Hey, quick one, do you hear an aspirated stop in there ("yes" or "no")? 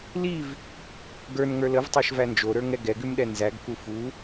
no